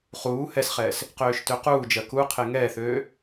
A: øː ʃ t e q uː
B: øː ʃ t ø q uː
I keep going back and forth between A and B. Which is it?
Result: B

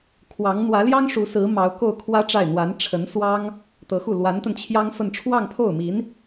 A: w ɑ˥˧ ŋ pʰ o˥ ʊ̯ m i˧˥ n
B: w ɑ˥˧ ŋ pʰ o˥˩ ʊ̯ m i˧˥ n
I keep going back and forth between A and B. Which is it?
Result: B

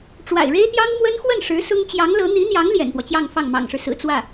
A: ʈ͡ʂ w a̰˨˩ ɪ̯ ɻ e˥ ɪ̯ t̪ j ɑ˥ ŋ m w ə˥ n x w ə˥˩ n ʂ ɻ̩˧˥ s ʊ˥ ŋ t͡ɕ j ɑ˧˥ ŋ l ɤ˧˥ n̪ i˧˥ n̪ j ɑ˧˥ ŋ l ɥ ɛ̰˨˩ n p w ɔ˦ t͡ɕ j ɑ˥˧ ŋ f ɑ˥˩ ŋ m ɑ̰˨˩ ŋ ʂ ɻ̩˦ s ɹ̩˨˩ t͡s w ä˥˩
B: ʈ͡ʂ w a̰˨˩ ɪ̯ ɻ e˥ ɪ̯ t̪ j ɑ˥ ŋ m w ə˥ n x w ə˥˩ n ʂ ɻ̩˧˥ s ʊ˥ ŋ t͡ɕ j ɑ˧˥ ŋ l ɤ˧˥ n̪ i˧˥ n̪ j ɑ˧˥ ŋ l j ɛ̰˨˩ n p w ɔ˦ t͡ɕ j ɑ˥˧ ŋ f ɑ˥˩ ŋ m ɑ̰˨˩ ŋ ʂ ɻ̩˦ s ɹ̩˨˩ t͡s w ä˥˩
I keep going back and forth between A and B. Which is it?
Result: B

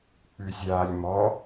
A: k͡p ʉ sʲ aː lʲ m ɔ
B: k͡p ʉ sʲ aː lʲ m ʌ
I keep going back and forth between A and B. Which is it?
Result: A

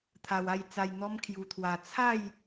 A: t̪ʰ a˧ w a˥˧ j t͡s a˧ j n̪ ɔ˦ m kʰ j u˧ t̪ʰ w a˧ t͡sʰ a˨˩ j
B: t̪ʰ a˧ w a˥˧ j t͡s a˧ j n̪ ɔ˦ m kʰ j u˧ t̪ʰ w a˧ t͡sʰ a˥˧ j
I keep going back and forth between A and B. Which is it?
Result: B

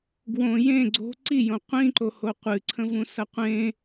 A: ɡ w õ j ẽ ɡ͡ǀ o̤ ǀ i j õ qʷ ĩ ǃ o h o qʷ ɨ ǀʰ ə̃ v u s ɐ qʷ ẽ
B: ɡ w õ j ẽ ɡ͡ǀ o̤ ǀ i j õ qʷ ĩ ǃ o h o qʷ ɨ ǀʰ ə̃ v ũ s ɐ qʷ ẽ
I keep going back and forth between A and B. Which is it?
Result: B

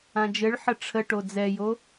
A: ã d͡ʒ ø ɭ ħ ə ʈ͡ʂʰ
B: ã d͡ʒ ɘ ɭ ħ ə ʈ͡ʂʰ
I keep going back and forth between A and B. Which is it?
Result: B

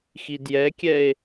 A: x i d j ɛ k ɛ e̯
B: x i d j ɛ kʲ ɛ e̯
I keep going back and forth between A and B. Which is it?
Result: B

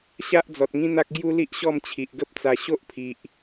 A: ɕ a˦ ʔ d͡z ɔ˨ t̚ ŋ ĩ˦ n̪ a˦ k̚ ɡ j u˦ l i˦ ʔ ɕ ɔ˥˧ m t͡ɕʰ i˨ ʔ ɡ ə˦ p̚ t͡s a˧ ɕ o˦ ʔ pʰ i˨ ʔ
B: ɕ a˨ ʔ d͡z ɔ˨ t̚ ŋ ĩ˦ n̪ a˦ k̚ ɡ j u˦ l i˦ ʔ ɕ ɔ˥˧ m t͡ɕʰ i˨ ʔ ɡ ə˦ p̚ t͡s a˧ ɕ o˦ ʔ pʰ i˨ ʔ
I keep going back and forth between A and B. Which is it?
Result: A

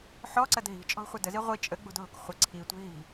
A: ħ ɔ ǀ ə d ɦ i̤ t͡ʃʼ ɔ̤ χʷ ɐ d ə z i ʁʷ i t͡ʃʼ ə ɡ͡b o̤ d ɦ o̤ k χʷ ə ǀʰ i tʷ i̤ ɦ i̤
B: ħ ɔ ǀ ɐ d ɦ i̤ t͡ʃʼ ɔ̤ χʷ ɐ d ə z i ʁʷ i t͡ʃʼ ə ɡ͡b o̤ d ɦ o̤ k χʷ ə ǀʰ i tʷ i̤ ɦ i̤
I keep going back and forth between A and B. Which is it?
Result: B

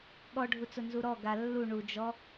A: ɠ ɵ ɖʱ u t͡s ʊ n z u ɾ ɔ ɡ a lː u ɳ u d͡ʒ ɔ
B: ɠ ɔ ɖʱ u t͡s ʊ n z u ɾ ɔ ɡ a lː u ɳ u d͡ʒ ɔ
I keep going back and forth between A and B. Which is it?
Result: B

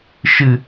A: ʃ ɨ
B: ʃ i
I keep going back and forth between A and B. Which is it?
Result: A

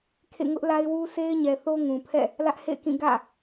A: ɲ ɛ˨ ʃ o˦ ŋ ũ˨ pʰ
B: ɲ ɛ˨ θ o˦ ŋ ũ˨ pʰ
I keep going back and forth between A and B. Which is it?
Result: B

